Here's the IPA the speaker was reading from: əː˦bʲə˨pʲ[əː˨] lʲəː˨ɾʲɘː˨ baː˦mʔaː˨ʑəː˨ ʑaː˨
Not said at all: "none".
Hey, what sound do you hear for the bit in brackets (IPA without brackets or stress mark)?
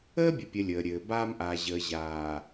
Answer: ə˨